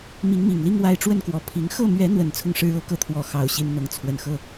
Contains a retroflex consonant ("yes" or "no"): yes